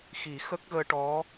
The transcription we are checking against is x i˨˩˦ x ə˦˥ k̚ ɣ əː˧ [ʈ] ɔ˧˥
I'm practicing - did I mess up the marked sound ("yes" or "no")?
no